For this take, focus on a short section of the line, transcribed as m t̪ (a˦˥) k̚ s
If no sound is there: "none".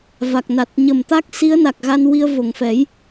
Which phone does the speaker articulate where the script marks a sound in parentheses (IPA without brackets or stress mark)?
a˦˥